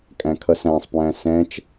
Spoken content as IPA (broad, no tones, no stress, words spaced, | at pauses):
kʼæ̃kʰʌsæ̃sˤpwæ̃ sɛ̃t͡ʃ